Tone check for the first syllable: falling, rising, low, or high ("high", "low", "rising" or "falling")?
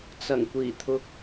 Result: low